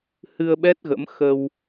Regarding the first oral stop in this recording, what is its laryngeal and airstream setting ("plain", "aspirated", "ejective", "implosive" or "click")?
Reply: implosive